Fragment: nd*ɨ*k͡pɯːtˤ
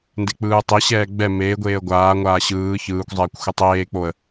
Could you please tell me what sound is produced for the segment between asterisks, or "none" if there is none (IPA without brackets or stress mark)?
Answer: e